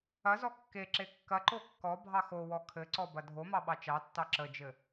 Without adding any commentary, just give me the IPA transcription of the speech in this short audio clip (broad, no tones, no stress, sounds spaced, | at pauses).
ɐ z ɔ kː e ǁ e kː ɐ ǃ o kː ɔ bʱ ɑ x o w ɔ kʰ ɘ ǀ ɔ b ɐ dʱ o m ɑ ɓ ɑ t͡ʃ ɑ tː ɑ ǁ ə d͡ʒ ɘ